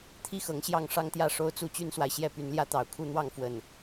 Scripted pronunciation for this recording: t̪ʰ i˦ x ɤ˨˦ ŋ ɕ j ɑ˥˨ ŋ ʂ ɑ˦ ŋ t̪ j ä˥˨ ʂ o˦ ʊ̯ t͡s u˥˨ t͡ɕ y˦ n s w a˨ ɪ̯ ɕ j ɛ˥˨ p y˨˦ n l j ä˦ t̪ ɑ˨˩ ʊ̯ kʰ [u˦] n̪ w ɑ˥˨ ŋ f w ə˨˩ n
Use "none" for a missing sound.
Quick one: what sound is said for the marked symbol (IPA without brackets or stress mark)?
u˦